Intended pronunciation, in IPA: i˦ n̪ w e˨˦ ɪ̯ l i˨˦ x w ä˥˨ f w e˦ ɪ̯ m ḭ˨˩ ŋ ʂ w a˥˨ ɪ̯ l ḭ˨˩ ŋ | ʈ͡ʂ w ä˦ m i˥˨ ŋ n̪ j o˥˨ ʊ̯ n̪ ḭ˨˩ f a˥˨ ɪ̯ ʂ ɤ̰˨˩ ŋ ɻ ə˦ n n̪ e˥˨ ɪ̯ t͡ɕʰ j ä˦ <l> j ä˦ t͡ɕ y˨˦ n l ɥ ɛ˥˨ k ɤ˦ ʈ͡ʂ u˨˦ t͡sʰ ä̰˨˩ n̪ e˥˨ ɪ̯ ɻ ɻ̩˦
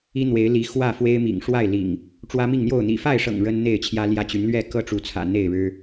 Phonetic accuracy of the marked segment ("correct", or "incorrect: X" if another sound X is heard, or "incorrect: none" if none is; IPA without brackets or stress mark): correct